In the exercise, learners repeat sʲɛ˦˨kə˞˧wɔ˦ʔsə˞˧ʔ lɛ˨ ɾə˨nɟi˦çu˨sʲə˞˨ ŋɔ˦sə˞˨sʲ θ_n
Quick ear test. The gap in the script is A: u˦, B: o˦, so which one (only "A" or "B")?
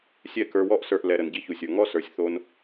B